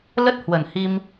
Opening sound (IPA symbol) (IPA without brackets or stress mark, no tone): l